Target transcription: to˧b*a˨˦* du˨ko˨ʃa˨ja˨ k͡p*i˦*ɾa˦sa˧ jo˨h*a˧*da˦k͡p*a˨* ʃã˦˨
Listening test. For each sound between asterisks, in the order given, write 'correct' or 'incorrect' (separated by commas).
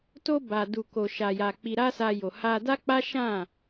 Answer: incorrect, incorrect, correct, incorrect